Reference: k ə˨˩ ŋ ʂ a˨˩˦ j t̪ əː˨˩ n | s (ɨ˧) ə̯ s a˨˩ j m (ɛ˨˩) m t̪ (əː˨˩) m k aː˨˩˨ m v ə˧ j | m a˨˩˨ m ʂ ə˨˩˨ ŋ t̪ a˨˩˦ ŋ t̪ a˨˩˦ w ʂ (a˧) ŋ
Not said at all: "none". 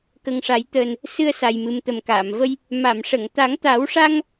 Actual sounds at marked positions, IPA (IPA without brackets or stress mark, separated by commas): ɨ˧, ɨ˨˩, ə˨˩, a˧